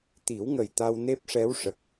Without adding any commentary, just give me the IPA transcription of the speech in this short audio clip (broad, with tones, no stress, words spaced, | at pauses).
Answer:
t̪i˨˩˦wŋə˨˩j t̪a˧wne˦˥p̚ʂɛ˧˥wʂə˨˩k̚